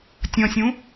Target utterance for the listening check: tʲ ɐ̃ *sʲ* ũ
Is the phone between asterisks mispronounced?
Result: no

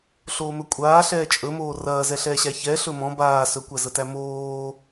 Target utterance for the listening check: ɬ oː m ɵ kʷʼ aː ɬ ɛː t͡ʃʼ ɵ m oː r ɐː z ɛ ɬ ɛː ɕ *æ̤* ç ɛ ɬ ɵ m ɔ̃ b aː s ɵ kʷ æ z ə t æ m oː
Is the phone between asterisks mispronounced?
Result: yes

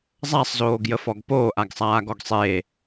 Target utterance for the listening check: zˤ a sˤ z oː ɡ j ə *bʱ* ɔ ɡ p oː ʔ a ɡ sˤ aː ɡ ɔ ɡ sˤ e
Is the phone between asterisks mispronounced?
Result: yes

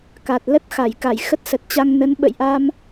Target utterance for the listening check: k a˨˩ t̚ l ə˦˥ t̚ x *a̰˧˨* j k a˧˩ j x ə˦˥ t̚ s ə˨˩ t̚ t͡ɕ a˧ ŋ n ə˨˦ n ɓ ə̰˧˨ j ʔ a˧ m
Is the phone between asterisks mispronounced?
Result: yes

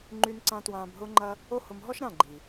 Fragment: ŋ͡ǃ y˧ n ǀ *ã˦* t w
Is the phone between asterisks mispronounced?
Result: yes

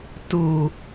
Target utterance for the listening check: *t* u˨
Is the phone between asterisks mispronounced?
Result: no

